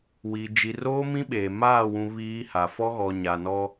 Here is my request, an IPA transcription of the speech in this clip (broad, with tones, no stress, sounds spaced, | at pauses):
w i˨ d͡ʒ i˨ r oː˦ m ĩ˦ ɓ eː˨ m aː˦˨ w ũ˨ β iː˦ h a˨ f ɔ˦ ɣ ɔ˨ ɲ a˨ n ɔ˦